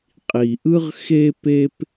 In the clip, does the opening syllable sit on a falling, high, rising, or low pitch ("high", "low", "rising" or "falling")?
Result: low